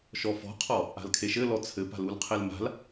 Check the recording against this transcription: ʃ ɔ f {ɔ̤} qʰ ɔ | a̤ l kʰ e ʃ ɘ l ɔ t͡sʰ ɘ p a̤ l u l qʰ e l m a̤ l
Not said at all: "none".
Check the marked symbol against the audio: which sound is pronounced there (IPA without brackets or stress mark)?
ɔ̤